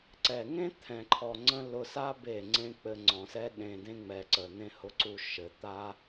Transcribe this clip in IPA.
ǀ ɛ˨ ŋ ẽ˦ t̪ʰ ɛ̃˨ ǃʰ ɔ˨ ŋ͡ǀ ə̃˧ l ʊ˧ s a˦ b e˦˨ ŋ͡ǀ ẽ˦ k͡p ɘ˧ ŋ͡ǀ ɔ̃˨ s ɛ˦ ɗ ẽ˨ d ẽ˧ ŋ͡m ɛ˨ ǀ ə˨ n̪ ẽ˧ h ʊ˨ ǀ u˨ ʃ ɘ˨ t̪ a˦

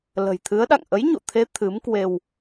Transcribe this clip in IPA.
l ə̤˨˩ j t̪ʰ ɨ˨˦ ə̯ ɗ a̰˧˨ ŋ ʔ ə˨˦ j ɲ ṵ˧˨ t̪ʰ e˨˦ t̪ʰ ɨ˨˦ m k w e˧ w

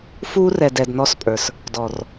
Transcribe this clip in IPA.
f uː˦ r ɛ˨ d ɛ˨ d n ɔ˦ s pʼ ə˞˨ s | d ɔ˨ r

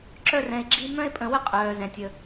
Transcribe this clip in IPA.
ǁ œ˨ r ɛ̃˩ e̯ ɡ͡ǁ i˨ m œ̃˦ e̯ pʼ ə̃˨ w ə˦ qʼ œː˩ z ɛ̃˩ tʲ ə˩

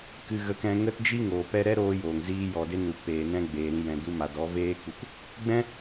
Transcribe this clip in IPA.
k ɨ˧ ɣ ə˧ k ɛ̃˧ ŋ ə˧ t d͡ʒ i˧ ŋ oː˨ p ɛ˧ ɾ ɛ˦ ɾ oː˧ j oː˨ ŋ z iː˧ j ɔ˨ d e˦ n u˨ p eː˨ n ɛ̃˧ ɡ͡b eː˨ ɾ ĩ˧ j ɛ̃˨ d u˧ m a˨ d ɔ˨˦ v eː˦ k u˧ k | ɡ͡b ɛ̃˦

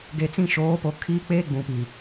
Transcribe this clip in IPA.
ɡ e˨ t͡s ĩ˦˨ ʃ oː˨˦ p o˨ kʰ iː˦ k͡p eː˦ ɡ͡b ũ˨ p i˨

